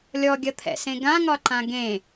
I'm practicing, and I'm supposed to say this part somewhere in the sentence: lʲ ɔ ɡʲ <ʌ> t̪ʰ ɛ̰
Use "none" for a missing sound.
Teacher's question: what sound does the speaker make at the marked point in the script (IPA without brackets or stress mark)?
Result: ʌ